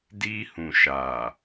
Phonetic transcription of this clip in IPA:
d i˧ h ũ˨ ʃ a˨

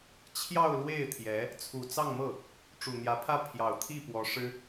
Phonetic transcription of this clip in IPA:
t͡ɕʰ j ɑ˥˧ ʊ̯ l w e˥˩ ɪ̯ t̪ʰ j ɛ˧˥ | t͡sʰ u˨˩ t͡s ɑ˥˧ ŋ m ɤ˥˩ | ʈ͡ʂ u˨˩ n̪ j ä˧˥ pʰ ä˥˩ pʰ j ɑ˨˩ ʊ̯ t̪ʰ i˥˩ p w ɔ˧˥ ʂ ɻ̩˥

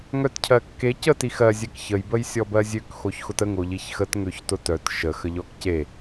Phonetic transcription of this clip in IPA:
ŋ œ t cʰ ɜ kː e c ə t i x ɜ zʲ ɛ k ç ə j b ə j sʲ ɔ b ɜ zʲ ø k x o ç x ʊ t ə ŋ o ʎ i ç x ə t ŋ ø ç t ʊ t œ t ʃ ə x ə ʎ ɔ k c e

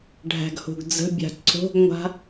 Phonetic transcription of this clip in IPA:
ɖʱ æ̤ ɡ h o̤ ɡ d͡z ə̤ bʲ a̤ ǀ o̤ ɡ ŋʷ a̤

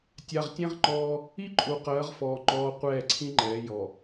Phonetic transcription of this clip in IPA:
tʲ a˨ ʁ tʲ ẽ˦ ʁ ŋ͡ǃ ɔː˦ | i˦ ǃʼ u˨ q ɜː˨˦ ʁ f ɔː˨ ŋ͡ǃ ɔː˨ qʷ ɛː˦˨ ǀʰ ĩ˦ ŋ͡ǃ ɛː˨˦ j ɔ˨

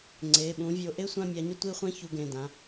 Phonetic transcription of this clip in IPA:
ŋ͡ǀ e˩˧˩ ɓ ũ˨˦ vʲ o˨˦ ʔ e˥ sʷ ã˥˧ mʲ a˨˦ ɲ o˥ tʷ i˥˧ χʷ ɛ̃˥ ç u˨˦ ɡ ẽ˩˧˩ d ã˩˧˩

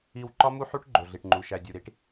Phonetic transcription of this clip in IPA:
i˨ w ǃ ɒ˦ m u˦ ħ u˦ ʈ ɡ͡ǃ o˨ ɮ i˨ ʈ ŋ͡ǃ u˨ ʃ æ˨ dʲ u˨ ɾ i˦ ʈ

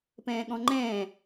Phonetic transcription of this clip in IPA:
p ɛ̃ː ɠ ɔ̃ ŋ͡ǃ ɛ̃ː

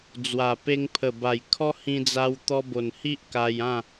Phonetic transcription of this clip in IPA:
d͡z w a˨˩ p e˧ ŋ pʰ ə˨˩ b a˨˩ j kʰ ɔ˦ h ĩ˧ d͡z a˧ w t̪ ɔ˧ b o˨˩ n h i˦ ʔ k a˧ j ã˥˧

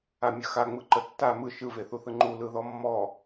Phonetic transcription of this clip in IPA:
a mʲ ə x a ŋ͡m ɯ ǃ ə tː a m ɯ ʃ ɯ v e θ u θ ɯ ŋ͡ǃ u l ɯ ð ɔ mː ɔ

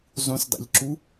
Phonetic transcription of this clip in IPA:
zˤ ũ s dˤ æ̰ ʎ ǁ u

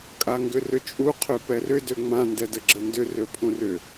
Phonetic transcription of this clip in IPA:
kʼ a ŋ ɡ ʏ r ʏ t͡ʃʼ u qʰ ø p ɛ r ʏ d ø ŋ͡m ã n d ɛ d ə ɡ͡ǁ ə n d ʏ r ø pʰ ũ r ʏ

